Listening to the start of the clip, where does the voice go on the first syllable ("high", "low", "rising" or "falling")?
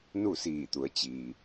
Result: falling